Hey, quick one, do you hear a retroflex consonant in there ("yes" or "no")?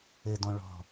yes